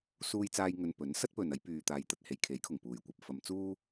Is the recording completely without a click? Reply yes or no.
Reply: yes